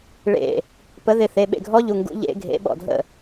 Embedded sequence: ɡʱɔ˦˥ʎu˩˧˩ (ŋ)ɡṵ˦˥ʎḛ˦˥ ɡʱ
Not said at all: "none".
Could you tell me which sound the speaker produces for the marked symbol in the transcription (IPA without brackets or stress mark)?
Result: ŋ